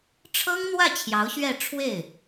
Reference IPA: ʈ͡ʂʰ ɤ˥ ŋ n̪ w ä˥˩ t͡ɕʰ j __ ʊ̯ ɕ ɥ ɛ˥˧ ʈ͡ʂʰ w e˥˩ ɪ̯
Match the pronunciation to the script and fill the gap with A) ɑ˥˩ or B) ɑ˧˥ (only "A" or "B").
B